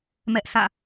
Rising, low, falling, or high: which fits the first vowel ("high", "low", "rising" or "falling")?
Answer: high